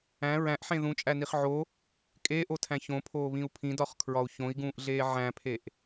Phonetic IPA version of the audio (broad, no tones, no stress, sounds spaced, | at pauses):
æ̃ ɹ æ̃ ʔ ħ ẽ ð ũ t͡ʃʼ æ n i χ ʕ o | kʼ eː ʔ o tʰ æ̃ ç õ pʰ oː β ĩ u̯ pʰ ĩ d ɒ χ kʰ ɹ ɒ u̯ ç õ i̯ ɡ ũː ʔ ɮ eː ʕ æ̃ pʰ e ʔ